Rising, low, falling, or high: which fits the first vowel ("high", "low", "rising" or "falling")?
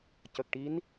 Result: low